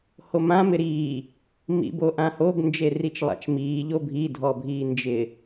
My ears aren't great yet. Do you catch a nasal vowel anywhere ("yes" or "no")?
yes